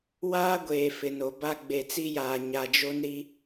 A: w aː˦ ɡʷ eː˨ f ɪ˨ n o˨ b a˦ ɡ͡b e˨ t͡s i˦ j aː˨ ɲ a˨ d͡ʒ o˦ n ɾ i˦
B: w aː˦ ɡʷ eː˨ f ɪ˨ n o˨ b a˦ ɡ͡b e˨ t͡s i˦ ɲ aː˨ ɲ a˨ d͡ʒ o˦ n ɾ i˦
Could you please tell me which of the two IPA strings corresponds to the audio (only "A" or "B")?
A